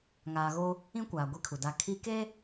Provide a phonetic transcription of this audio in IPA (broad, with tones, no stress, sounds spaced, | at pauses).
ŋ aː˨ ɣ o˦ | ĩ˦ kʷ aː˨ ɡʷ i˦ kʰ u˨ d a˦ kʰ i˦ k e˦